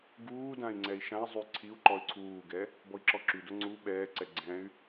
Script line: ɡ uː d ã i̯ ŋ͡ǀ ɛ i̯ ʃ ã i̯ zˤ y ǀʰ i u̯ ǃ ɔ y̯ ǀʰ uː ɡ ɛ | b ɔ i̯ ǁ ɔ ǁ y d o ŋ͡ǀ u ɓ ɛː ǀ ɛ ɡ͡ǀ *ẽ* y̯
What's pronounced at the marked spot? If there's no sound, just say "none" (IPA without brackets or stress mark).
ɛ̃